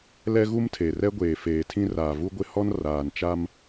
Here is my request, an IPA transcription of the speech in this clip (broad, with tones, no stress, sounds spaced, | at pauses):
l ɛ˦ ɣ u˦ m tʰ e˨ r ɛ˦ ɡʷ eː˨ f eː˨ tʰ ĩ˦ r aː˨ v u˦ ɡʷ ɪ˦ h ɔ˦ n r aː˨ n t͡ʃ a˦ m